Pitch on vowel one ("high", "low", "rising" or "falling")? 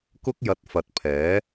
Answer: high